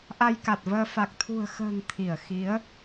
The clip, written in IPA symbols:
ʔ a˧ j k a˨˩ t̚ v əː˧ f a˨˩ k̚ t̪ʰ ṳ˨˩ ə̯ x ə̤ː˨˩ ŋ t̪ʰ i˧˩ ə̯ x i˨˦ ə̯

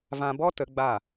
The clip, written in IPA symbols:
v ã˧ b ɔ˦ t ə˨˦ ɡ͡b a˦˨

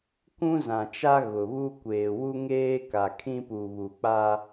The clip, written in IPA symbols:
kʷ ũ˦ z ã˨ t͡ʃ a˦ ɣ ʊ˨ β u˦ kʷ eː˨ w u˦ ŋ eː˦ k a˨ kʰ ĩ˦ p u˨ β u˨ k͡p a˦

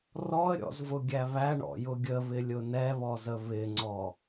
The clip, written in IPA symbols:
r ɔ ə̯ ɾʲ ɔ̰ z v ʊ ɡʲ æ β æ ɳ ɔ̰ j ʊ ɡʲ ə β ɪ lʲ ʊ n ɛ β ɔ z ə β ɪ ŋ͡ǀ ɔ

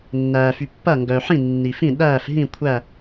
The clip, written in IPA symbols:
nː æː˨ f y˨ pː ɐ˦˨ ŋ ɡ œ˨ ħ ĩ˦˨ nː i˨ f ĩ˦˨ ɗ æː˦˨ f ɦ ĩ˦˨ kʷʰ æ˦˨

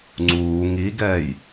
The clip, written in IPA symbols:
ŋ͡ǀ uː ŋ i ɡ ɛː j

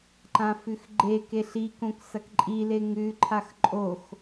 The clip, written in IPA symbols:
ǃ ã f ʉ x ɡ͡ǃ e k e ɬ i k õ k s ɐ k ǃʼ i l e ŋ ʉ ǃʰ a x ǃʼ o x

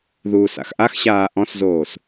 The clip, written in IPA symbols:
ð uː s a̰ x ʔ a x ɕ aː ʔ ɔ̃ s z oː s

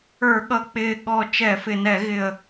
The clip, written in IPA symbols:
ə˞˧˩˧ ɠ ʌ˨˩ k͡p ɪː˨˩ ɠ ɔ˨˩ t͡ʃ ɛ˧˩˧ f ɪ˨˩ n ɛ˧˩˧ ɣ ɪ˨˩ ə̯

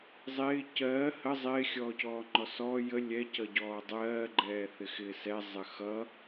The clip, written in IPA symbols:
zˤ ɪː c ɜː h ə zˤ ɪː xʲ ɔː c ɔː ŋ͡ǃ ɔ s ɔ j ə lʲ ɛ c ʌ ɟ ɔː dˤ ɜː ɡ͡ǃ ɛː θ ɪ x ɪː s ɛ zˤ ə x ʌ

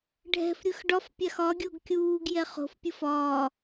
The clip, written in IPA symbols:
ɖʱ ɛ̤ f ɾʲ ɯ x ɖ ɒ f pʲ a x ɒ ɡʲ o ɡ kʲ uː ɡ j ɛ χ o̤ f pʲ ɯ f ɒː

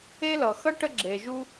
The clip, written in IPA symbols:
e˦ l ʌ˩ x ʌ˥ ʈ ə˦ ɡ͡ǁ e˨ ʒ u˦

